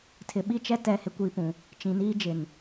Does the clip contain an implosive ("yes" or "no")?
yes